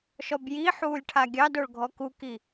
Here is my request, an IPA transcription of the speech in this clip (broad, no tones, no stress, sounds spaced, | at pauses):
ʃ ɔ b j i ħ uː lʲ ʈʰ a ɡʲ ɑ d o ɭ ɡʱ ɔ k u k i